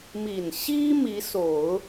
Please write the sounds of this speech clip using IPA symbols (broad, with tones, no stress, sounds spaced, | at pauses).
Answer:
m i˨˩ n ɕ i˥ m i˧˥ s o˨˩˦ ʊ̯